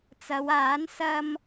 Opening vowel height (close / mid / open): open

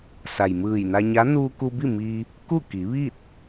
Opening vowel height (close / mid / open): open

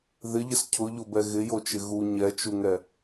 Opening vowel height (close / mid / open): close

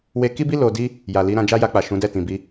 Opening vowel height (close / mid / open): mid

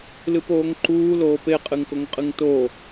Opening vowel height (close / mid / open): close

